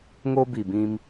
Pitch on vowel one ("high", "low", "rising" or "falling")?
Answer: high